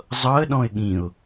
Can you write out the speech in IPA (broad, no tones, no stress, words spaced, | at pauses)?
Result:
zˤɤə̯ ɗɔ̃ɪ̯ɠĩʊ̯